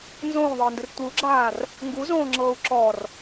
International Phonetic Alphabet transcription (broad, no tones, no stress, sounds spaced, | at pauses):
n z õː ðˤ ɤː n d ɯ r tʷ ɯ u̯ ɡ͡ǁ aː r | ŋ ɡ u z õː ŋ͡ǁ ɤː u̯ ǁ ɔ r